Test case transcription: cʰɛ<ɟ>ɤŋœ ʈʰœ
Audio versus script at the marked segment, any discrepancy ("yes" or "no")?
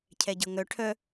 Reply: no